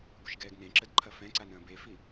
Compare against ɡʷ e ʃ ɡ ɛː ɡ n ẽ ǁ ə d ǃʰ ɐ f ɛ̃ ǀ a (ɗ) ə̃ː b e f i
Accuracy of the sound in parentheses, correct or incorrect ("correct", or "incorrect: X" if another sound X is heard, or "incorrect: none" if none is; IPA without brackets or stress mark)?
incorrect: n